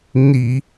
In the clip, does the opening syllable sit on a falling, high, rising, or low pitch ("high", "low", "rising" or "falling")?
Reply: low